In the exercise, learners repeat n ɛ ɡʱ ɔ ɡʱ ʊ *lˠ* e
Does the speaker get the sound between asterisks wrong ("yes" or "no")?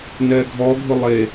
no